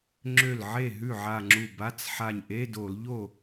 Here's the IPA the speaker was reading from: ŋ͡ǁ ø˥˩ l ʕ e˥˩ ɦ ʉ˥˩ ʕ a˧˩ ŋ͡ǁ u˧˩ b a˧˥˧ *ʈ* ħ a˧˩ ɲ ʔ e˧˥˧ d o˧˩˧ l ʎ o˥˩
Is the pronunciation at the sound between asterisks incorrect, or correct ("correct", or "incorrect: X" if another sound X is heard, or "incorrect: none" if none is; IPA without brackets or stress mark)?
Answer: incorrect: t͡s